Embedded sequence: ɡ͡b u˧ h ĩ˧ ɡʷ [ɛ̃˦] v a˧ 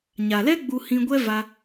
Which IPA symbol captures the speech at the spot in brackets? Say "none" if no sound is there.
ɛ˦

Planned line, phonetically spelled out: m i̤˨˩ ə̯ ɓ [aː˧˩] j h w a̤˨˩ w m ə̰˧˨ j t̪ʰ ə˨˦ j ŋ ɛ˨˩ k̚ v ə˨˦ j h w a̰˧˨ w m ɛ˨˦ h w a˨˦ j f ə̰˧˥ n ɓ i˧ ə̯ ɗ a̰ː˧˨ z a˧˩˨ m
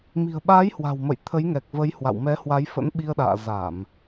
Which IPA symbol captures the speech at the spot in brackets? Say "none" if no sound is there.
aː˨˦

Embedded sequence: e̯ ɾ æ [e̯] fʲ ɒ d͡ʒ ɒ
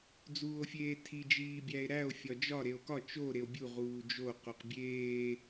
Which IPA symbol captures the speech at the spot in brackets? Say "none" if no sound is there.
o̯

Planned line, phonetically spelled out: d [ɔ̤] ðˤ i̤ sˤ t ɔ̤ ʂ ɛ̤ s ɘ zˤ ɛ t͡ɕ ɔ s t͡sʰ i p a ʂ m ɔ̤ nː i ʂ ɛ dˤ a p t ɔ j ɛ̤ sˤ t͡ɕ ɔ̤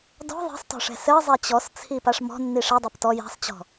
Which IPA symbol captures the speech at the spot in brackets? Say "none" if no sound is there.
ɔ̤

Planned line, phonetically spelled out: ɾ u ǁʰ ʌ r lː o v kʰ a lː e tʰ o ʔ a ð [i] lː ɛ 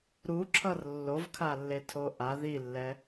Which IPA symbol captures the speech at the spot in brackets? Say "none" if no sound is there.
i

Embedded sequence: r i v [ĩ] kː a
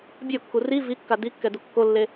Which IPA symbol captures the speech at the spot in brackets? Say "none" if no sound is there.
i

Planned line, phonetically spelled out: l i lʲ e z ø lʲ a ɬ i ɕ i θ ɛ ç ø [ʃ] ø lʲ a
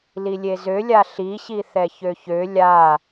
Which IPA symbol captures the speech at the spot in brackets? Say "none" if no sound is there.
ç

